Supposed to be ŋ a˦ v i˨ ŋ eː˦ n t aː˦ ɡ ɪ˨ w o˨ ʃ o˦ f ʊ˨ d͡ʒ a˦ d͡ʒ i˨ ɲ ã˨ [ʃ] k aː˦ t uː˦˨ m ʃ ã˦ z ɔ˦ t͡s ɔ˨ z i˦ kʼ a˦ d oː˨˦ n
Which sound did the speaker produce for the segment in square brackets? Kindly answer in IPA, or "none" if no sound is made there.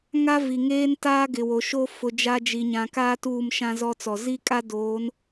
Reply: none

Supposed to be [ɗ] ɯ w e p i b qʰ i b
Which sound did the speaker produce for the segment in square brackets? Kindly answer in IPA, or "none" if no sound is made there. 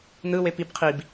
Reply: n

